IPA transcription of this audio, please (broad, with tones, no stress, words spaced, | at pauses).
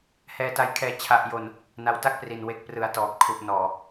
hɛː˧ta˧jkʰɛː˧ t͡ɕʰa˨˩ʔjo˨˩n | na˧wta˥˩k̚pri˨˩n we˨˩k̚prɯ˩˦a̯ tɔː˨˩p̚kʰu˨˩ʔnɔː˨˩